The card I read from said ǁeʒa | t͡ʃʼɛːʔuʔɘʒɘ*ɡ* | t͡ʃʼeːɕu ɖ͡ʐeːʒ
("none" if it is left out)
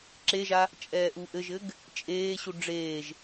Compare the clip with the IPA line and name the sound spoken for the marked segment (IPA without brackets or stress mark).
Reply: ɡ